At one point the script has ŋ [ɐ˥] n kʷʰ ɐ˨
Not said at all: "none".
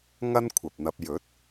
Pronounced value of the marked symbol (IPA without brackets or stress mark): ɐ˥